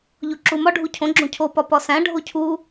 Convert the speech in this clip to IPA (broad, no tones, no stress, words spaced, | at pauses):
ʎoǁumɒ ɖʱucʰõ ɡ͡ǁõcʰo pɒpɒsæ̃ ɖʱocʰu